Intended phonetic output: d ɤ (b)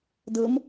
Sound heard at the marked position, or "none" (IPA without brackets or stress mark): m